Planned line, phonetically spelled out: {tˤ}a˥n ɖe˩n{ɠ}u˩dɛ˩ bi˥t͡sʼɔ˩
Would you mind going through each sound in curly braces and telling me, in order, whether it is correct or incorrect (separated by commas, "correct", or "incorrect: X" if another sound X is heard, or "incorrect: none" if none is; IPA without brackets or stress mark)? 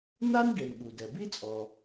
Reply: incorrect: n, correct